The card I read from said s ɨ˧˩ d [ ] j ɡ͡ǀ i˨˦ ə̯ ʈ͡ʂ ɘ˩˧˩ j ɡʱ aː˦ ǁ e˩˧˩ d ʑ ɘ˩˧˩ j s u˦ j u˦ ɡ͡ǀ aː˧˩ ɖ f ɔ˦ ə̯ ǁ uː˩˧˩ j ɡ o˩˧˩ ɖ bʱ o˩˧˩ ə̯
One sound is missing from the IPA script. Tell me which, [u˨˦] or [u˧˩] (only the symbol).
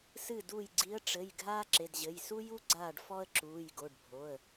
u˧˩